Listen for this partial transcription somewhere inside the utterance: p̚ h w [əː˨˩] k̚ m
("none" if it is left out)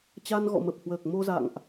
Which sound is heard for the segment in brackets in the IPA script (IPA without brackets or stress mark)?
əː˨˩